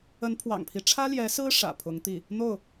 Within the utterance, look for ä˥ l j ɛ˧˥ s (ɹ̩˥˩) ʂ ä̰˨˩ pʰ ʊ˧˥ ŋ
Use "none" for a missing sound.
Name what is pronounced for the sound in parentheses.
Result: ɹ̩˥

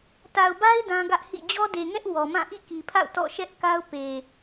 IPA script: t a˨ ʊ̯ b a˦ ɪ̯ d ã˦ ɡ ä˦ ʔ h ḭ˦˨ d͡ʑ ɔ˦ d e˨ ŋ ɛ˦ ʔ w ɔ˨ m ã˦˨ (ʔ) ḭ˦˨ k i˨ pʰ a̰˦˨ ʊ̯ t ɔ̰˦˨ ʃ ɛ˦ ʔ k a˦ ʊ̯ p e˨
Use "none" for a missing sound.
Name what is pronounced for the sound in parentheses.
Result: ʔ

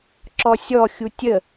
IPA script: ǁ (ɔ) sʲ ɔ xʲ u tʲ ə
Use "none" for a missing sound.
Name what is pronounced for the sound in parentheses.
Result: ɔ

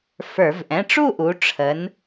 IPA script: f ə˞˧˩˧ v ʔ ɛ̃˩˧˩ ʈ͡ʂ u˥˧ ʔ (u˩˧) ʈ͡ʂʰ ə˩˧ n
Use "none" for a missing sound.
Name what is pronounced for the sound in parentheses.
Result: u˩˧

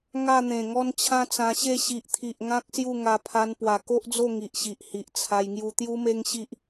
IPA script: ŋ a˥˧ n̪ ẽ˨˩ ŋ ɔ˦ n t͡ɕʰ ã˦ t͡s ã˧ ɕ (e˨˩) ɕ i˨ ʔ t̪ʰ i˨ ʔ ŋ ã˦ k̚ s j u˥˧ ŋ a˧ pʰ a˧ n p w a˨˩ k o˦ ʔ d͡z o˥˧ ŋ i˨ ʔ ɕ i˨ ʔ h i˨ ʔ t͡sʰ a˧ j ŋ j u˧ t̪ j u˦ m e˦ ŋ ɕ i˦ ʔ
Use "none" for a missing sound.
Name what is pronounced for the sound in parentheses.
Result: e˥˧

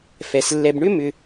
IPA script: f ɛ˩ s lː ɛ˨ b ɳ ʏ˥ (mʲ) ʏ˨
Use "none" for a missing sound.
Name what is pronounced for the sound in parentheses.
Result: m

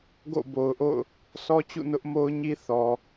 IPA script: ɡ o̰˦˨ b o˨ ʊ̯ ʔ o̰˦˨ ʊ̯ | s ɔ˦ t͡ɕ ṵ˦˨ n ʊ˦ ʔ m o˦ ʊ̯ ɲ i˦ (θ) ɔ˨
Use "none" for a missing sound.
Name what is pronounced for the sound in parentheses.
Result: θ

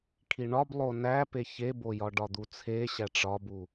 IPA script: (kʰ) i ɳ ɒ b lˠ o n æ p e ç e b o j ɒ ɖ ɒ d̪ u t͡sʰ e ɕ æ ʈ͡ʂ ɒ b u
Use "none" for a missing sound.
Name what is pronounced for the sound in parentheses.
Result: kʰ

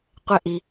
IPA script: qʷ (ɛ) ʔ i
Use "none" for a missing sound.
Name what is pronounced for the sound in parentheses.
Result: ɛ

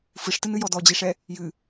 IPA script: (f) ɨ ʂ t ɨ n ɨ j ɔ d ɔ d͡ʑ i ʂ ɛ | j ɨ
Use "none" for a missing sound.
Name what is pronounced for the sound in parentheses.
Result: f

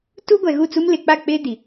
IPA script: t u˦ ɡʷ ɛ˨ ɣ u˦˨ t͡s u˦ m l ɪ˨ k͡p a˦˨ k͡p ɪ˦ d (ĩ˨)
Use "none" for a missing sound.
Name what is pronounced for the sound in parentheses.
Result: i˨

